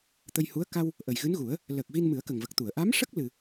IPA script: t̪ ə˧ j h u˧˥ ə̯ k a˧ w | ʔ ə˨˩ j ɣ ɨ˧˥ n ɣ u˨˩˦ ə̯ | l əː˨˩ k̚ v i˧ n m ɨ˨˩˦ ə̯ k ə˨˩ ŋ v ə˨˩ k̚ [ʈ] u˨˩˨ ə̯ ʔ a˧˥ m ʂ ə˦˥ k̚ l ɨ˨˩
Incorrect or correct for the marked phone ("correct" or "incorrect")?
incorrect